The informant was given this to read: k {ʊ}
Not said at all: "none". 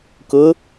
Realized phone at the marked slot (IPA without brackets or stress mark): ʊ